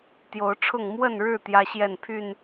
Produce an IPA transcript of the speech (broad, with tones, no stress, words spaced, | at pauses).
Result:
t̪jo˨˦ʊ̯ ʈ͡ʂʰʊ˥˨ŋ mwə˥˨nɻɻ̩˥˨ t̪jä˦ɕjɛ˥˨npʰy˥˨n